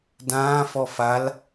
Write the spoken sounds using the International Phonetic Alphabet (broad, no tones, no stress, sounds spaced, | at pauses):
d ãː f ɔ f a l